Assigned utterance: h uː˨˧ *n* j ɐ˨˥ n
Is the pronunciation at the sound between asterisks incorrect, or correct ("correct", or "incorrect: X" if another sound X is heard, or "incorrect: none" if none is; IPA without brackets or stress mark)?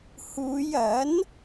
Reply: incorrect: none